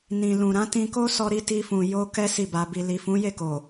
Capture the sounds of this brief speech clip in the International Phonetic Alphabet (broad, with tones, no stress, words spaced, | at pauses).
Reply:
nĩ˨lũ˨ɾã˨˦ tĩ˧ko˦ sɔ˦ɾi˦ ti˧fũ˨ jo˧ kɛ˦ si˦˨ba˧ bi˨li˨fũ˨˦ je˦˨ko˨